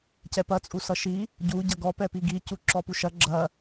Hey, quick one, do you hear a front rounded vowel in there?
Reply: no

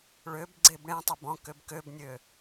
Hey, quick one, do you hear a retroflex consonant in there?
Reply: yes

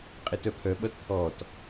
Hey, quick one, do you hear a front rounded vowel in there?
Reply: yes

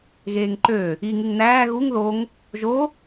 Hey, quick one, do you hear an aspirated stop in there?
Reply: no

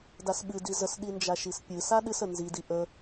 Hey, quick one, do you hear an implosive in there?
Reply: yes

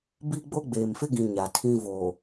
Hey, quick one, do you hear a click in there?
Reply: no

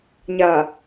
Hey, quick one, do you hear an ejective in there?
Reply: no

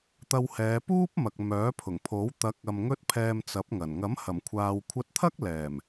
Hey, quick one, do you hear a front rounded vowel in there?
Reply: yes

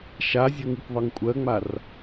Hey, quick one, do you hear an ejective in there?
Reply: yes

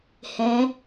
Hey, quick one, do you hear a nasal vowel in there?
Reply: yes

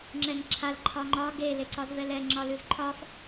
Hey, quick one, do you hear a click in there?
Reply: yes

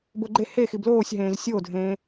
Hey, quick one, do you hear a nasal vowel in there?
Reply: yes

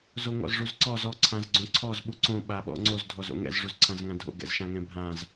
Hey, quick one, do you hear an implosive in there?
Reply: yes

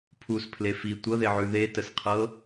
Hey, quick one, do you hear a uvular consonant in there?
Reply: yes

